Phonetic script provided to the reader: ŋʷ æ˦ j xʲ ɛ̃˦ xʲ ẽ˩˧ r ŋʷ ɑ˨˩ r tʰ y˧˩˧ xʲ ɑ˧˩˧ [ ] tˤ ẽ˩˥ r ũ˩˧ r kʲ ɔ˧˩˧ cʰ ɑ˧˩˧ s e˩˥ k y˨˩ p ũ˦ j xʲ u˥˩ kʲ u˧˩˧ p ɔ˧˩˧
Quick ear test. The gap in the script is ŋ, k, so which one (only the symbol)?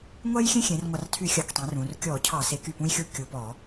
k